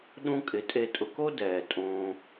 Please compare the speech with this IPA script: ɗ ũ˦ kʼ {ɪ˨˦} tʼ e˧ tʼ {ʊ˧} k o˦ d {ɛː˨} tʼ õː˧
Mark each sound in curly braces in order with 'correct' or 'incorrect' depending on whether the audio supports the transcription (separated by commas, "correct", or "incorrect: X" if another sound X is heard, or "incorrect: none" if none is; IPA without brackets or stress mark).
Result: correct, correct, correct